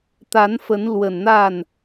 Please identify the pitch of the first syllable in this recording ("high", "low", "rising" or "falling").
rising